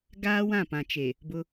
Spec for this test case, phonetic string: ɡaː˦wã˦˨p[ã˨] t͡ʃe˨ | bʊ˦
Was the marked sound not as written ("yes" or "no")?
no